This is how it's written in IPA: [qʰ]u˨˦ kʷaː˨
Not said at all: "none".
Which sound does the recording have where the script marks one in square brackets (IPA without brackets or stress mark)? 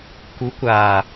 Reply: k